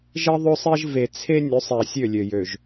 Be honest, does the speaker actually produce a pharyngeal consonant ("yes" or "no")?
no